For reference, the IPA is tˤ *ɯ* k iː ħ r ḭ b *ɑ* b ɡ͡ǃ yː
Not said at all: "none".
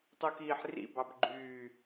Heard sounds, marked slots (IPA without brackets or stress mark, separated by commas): u, ɑ